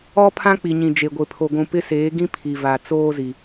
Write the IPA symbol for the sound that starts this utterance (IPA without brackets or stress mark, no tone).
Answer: ɔ